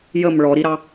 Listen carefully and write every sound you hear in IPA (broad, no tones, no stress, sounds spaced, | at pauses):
j ə m ɭ ɔ ɾ i ɾ ɑ